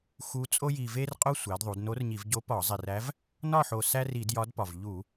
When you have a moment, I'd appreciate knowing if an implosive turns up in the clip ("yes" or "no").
no